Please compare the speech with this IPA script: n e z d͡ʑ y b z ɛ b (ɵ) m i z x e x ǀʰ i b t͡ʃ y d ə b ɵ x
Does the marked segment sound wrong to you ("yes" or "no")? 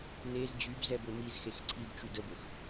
no